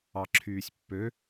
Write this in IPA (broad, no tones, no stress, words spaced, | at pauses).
ɑǁʰyːsʲpːø